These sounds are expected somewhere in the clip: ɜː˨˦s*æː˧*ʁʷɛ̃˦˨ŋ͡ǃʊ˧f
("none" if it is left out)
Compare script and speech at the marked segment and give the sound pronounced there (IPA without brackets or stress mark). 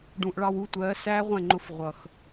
æː˦